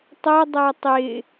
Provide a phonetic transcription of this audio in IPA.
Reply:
tˤə dˤætˤɪ

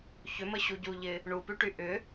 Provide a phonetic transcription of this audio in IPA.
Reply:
çʏməɕu ɟuʎɪ | ɳupyʈy ʔʏ

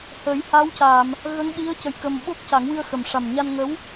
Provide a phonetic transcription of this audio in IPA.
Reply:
hə˨˩˦jha˧˥wca˨˩˨m | ɣə˧˥ŋɗi˧˥ə̯ cə˧jkə˧m ɓo˦˥k̚ca˨˩˦ŋwɨ˧ə̯ xə˨˩m ʂa˨˩mɲa˧nŋə˧˥w

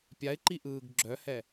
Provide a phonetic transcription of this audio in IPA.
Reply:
pʲaɪ̯ǃiʔɯːɡ ɡ͡ǁœhɛ

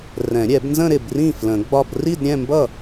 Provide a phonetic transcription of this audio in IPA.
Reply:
rɛ̃˨˩˦ɾʲɛ˨˩˦b nzə̃˥˧ ɾɪ˥˩brĩ˥˩ flə̃˨˩˦ɡ͡bɒ˥˧b ri˥˧dɾʲɛ̃˥˧mbʌ˥˩

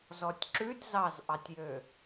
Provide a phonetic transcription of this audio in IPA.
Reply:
zɔtʲǁʉd zɑzʔɑtʲjø

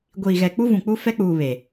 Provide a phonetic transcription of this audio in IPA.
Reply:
ɡʷiː˨ɣɛ˨k͡pu˦ vũ˨k͡pu˦fɛ˦k͡puː˨ βe˨

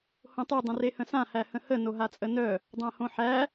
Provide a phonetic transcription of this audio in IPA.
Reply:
hõtˤø dˤə̃rehə̃sã hæhə̃hə noɦat͡sʼənœ | dˤãhõħæ

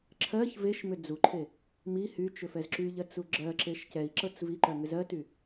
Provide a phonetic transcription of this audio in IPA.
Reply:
ǁʰɜç veʃmʏ d͡zuǃʰe | mi hyt͡ʃʏfɛz ǁyʎɜt͡su ɡ͡ǁɜǁeʃ cɛi̯ǁɤt͡s viǃɜŋʏz ɜty

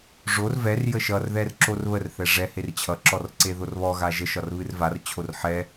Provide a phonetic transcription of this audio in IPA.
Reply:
ʐor vɛr jəʃʌr ðɛrǁorβər θɛʐɛ hert͡ɕʰʌ ǁɔrǀeðorβɔ ɣaʒə ʃɒrβɨrvar t͡ɕʰorħɛ

